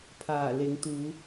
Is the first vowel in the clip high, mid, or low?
low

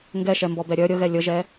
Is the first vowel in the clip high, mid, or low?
mid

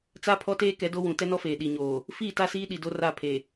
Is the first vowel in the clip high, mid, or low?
low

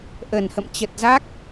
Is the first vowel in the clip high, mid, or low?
mid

